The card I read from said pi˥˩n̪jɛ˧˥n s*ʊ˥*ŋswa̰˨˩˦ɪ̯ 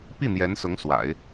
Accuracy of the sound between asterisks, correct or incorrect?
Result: incorrect